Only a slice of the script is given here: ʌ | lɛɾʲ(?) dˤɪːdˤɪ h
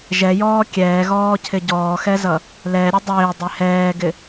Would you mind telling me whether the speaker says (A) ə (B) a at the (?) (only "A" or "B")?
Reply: A